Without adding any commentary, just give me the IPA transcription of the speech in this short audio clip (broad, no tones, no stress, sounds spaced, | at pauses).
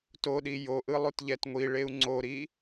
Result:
t o ɗ i j o ʔ ɯ lˠ u t ʎ ɛ t ŋʷ i ɭ e u̯ ŋ͡ǀ o ɾ i